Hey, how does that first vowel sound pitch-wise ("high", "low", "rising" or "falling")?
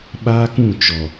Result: high